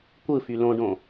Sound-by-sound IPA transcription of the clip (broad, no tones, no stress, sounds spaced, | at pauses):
kʷ ɯ f y l õ ɖ õ